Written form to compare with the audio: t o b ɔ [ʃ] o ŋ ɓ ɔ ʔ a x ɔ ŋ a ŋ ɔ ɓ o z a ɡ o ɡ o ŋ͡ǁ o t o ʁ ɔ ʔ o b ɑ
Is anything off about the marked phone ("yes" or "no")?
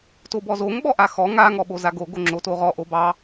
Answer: yes